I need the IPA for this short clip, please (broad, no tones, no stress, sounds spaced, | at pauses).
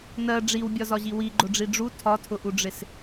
n ɜ ɖ͡ʐ i w bʲ ɒ z ɒ ʑ i w i ɡ͡ǃ ʊ ɖ͡ʐ i ɖ͡ʐ u tʰ ɒ tʰ ʊ ʔ u ɖ͡ʐ ɪ s